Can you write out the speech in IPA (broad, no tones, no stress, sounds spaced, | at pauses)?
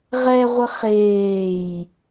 ʁ ɛ ʁʷ ə χ eː j